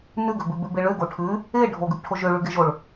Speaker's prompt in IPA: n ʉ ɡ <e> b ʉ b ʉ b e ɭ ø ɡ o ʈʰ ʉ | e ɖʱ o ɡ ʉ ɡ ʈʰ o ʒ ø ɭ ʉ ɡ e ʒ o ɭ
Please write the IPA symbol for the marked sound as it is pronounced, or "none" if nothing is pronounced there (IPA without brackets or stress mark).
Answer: ø